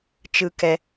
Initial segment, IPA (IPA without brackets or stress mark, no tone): t͡ʃ